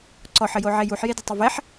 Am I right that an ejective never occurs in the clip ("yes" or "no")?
yes